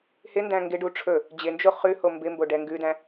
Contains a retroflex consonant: yes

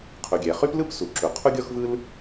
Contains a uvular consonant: yes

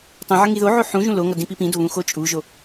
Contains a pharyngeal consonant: yes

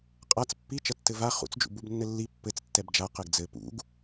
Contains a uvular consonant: yes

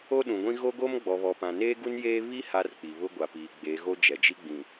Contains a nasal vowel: yes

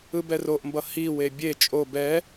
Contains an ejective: yes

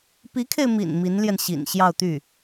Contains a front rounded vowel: yes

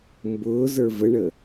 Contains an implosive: no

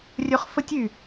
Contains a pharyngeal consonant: no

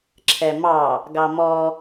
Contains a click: yes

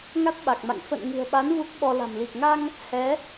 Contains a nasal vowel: no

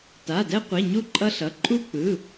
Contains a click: yes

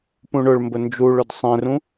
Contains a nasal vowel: yes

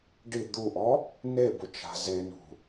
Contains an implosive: no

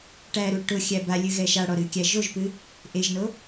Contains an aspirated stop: no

